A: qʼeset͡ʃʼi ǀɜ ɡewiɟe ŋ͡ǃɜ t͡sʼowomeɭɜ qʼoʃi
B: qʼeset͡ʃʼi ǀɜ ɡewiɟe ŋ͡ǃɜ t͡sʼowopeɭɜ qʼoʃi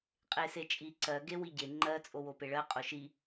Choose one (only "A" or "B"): B